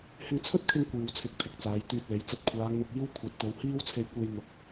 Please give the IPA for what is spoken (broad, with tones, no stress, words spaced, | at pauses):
hɪ˧ŋt͡sʰɵ˥t̚kʰɪ˧ŋ kʷiː˨w t͡sʰɪ˨˥k̚t̪ʰɪ˨˥k̚ t͡saː˨˧jt̪yː˧t̚le˨˥jt͡sɐ˧t̚ kʷʰaː˨˧ŋn̪ʊ˨k̚ iː˥wkʷʰɐ˨˥t̚t̪o˨˧w hiː˥wt͡sʰe˧jkʷe˧j n̪ʊ˨k̚